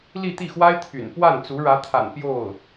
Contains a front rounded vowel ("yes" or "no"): yes